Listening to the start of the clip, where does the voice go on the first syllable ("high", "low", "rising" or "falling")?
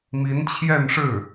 rising